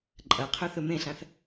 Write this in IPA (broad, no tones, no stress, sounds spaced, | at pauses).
ǃʼ ɐ qʰ ɵ θ ɵ m ẽ ɬ ã θ